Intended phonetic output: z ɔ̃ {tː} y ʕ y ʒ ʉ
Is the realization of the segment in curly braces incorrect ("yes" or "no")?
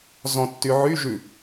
no